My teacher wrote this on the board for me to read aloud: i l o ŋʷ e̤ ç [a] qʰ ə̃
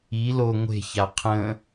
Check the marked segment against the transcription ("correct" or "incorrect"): correct